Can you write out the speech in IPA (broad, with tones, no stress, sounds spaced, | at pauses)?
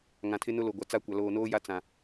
ŋ ã˨ tʰ ɪ˦ n ʊ˦ l o˨ ɡʷ a˨ t͡s a˦˨ kʷ a˨ l oː˨ n oː˦ j a˦ t͡s ã˨